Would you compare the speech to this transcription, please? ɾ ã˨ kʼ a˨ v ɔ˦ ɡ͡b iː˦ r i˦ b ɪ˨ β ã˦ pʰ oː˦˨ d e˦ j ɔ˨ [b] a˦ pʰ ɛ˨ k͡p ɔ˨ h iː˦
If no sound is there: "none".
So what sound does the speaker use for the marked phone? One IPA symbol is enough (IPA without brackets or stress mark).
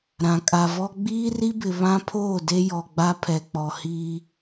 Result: ɡ͡b